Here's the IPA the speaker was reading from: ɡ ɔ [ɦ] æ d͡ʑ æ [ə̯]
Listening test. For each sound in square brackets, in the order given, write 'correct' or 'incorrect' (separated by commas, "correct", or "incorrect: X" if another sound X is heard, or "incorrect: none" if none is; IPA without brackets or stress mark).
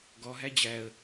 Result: correct, correct